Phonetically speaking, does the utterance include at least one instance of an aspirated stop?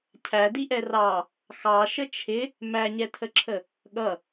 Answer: yes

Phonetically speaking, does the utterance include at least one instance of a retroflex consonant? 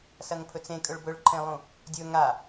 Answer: yes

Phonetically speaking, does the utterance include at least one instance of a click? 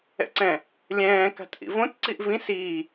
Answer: yes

